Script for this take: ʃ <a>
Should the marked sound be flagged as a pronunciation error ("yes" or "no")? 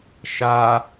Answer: no